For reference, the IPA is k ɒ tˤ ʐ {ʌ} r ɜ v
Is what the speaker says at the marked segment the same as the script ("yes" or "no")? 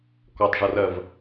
yes